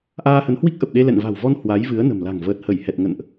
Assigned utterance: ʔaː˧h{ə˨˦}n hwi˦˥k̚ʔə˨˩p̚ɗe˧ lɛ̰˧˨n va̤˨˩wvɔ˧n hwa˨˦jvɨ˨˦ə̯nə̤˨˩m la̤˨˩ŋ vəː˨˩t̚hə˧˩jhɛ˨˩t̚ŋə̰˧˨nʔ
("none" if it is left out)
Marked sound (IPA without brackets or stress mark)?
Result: ə˨˦